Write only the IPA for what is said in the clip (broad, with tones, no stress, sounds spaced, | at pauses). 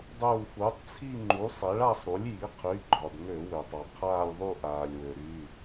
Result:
dˤ uː˧˩ f uː˩˥ tˤ t͡sʰ i˥˧ ŋ͡ǃ u˩˥ sˤ e˩˥ ɭ a˥˧ sˤ ɾ u˩˥ lʲ j i˩˥ qʰ y˩˧˩ ɡ͡ǃ ɒ˩ d ŋ ø˧˩˧ w ø˩ tˤ ɒ˩ qʰ aː˥˧ lʲ ðˤ u˥˧ ʔ aː˩ lʲ w ø˩ ɾ y˩˧˩